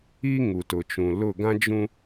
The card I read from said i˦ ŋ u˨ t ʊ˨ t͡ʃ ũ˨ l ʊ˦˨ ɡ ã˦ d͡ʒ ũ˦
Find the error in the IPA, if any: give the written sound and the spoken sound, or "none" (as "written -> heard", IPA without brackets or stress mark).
none